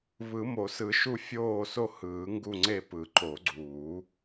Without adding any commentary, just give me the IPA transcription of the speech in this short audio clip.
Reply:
βɯ˨˩˦mo˨˩˦sɯ˨˩˦ ʃu˦˨fʲoː˦˨so˦˨ hɯː˨˩˦ŋɡu˦˨ŋ͡ǀe˦˨ pɯ˨˩˦ǃo˨˩˦ɡ͡ǀuː˨˩˦

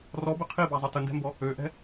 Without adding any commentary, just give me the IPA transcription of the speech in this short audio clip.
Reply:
rɔbɘ qʰibazˤə təndɛ̤mbɔ | øʔɛ̤

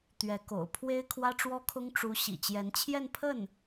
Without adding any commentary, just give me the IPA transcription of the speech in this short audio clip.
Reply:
t̪ɥɛ˧˥ko̰˨˩ʊ̯ pʰwe˥ɪ̯kʰwä˥ʈ͡ʂwɔ˥kʰʊ˥ŋ ʈ͡ʂu˧˥ ɕḭ˨˩t͡ɕjɛ˧˥nt͡ɕʰjɛ˥˧npʰə˥˩n

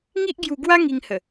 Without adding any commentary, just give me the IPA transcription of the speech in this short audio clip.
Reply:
ŋi˦ʔɡju˧ɡwa˦ ŋi˧ŋhə˨˩

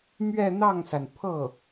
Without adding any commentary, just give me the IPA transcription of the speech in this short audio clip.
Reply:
mɥɛ˥˧n̪ɑ˥˩ŋsa˩n pʰɤ˥˩

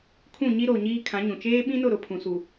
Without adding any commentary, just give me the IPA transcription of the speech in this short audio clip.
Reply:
kʰũ˦˨ɲi˦ɾo˨ɲiː˦ kʰã˨˦ɲũ˨ t͡ʃeː˦ɓĩ˦nʊ˦˨ ɾʊ˨˦pʰũ˨ su˨

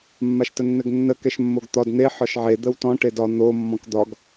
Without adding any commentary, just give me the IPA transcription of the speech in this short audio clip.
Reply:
mːaʃtənːɘɡnːə kɛʃmːoɡt̪ɒd n̪e ħɒʃʕe d̪əwtɔ̃ ʈedɒ n̪o mːɔ̃kd̪ɒɡ

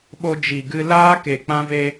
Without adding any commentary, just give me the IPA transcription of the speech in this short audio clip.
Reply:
ɓo˧d͡ʒi˨ɡɨ˧ laː˦ ke˨k͡pã˧ve˧

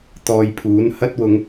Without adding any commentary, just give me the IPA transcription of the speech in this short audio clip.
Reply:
t̪ɔː˧jpʰuː˨˥n hɐ˥t̚wʊ˨˧ŋ

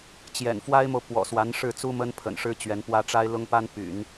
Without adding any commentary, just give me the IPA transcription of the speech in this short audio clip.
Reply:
t͡ɕjɛ̰˨˩n fwa˥ɪ̯mo˨ʊ̯ pwɔ̰˨˩swa˧˥n ʂɻ̩˥˩t͡su˥ mə˥npʰə̰˨˩nʂɻ̩˥ t͡ɕɥɛ˧˥npwä˥ ʈ͡ʂa˥ɪ̯lʊ˥ŋ pa˥n py̰˨˩˦n

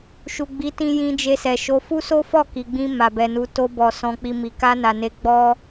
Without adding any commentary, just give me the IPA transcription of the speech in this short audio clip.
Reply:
ʃu˨ɡ͡bi˨˦tĩ˧ jĩ˧d͡ʒe˧sɛ˨ ʃo˧ fu˦so˦fɔ˦˨ ki˨ɡ͡bĩ˧ ma˨bɛ˨nu˧ to˧bɔ˨ sɔ̃˧k͡pi˧mi˨ ka˧na˨ne˨˦ ɡ͡bɔ˦

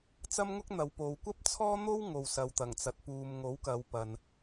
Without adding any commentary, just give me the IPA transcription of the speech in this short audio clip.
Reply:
t͡sɐ˥mŋʊ˥k̚n̪ɐ˨˧wpo˨w kʷɐ˥p̚t͡sʰɔː˥n̪o˥w ŋo˨wsɐ˨wt̪ɐ˨˩ŋt͡sɐ˨t̚ puː˨mŋo˨˥wkɐ˨˧w pɐ˨n

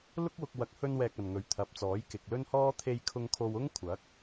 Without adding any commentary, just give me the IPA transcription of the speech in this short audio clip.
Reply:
lʊ˥k̚wʊ˧k̚ wɐ˨˥k̚hɵ˧nwɛː˨k̚ ɐ˨nŋɵ˨˧ɥt̪ʰɐ˨˥p̚t͡sɔː˨˥j kɪ˨k̚lɵ˥nhɔː˥ t̪ʰe˧jkʰʊ˧ŋ kʰo˧wʊ˥ŋ kʷʰɐ˨˥k̚

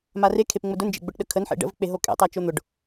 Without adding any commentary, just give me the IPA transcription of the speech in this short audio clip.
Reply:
mare kʰepŋ͡mʊdʊnd͡ʒḛ ɡ͡bʊʈɗəkʰənħḛ ɖə̰vk͡peɦo kʼḛ tˤat͡ʃon̪ʊɖ

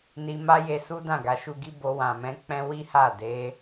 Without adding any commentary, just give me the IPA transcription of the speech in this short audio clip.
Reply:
ni˧ma˦je˧ su˦dã˦˨ɡa˨˦ ʃu˧ɡi˦bo˧ wã˨mɛ̃˧ k͡pɛ̃˦ wi˦ha˦˨ de˧

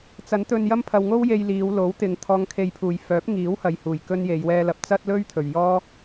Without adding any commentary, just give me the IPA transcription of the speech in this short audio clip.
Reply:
t͡sɐ˨˥nt̪ɵ˧njɐ˥m pʰɐ˧wŋo˥wje˧j liː˨˧w lo˨˥wt̪ɪ˨ŋ t̪ʰɔː˨˧ŋkʰe˨jpʰuː˨˩j fœː˨˥p̚ŋiː˨˥whɐ˨jhuː˨˩j kɵ˥nje˨˧j wɛː˧lɐ˨˥p̚ t͡sɐ˥t̚lɵ˥ɥ t̪ʰɵ˨ɥ jɔː˥

